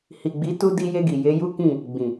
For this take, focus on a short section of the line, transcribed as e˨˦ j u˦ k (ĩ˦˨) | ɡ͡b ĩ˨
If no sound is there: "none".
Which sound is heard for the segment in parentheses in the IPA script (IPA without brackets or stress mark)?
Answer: ĩ˦˨